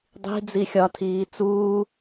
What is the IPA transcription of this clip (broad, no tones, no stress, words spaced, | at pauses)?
dˤi̤ d͡zixʲɒtʰiː t͡suː